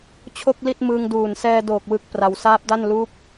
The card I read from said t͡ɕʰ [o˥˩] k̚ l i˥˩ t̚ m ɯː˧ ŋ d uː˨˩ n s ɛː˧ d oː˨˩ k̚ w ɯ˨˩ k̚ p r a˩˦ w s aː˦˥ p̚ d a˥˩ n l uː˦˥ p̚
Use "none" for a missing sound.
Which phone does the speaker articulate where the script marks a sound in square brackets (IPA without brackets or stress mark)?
o˥˩